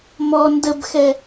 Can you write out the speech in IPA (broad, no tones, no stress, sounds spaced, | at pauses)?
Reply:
m ɔ n d ə b x ɛ